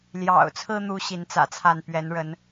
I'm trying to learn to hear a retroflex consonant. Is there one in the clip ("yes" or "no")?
yes